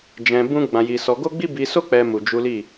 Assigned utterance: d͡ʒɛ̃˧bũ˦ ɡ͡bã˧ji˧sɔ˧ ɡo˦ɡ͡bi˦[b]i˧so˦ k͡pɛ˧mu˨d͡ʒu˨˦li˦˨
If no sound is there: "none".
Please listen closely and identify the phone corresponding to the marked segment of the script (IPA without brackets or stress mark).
b